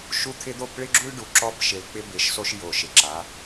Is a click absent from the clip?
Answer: no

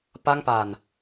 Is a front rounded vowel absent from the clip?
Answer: yes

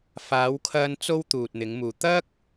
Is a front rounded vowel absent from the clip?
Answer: yes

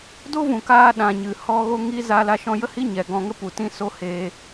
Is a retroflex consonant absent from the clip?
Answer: yes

